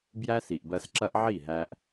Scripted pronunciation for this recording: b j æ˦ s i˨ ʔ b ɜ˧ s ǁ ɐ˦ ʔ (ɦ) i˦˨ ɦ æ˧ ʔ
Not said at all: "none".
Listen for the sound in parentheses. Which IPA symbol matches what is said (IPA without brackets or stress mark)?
ʕ